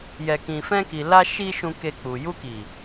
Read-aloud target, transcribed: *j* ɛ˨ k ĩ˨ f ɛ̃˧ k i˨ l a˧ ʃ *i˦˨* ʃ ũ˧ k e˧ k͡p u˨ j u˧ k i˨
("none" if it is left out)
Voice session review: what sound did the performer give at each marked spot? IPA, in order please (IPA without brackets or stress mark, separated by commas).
j, i˧